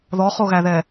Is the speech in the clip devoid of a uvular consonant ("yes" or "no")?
no